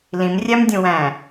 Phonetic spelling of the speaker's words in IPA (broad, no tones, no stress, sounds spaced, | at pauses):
l ĩ m rʲ æ m dʲ ũ w æ̃